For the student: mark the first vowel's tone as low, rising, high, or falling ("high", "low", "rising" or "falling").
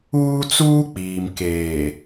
high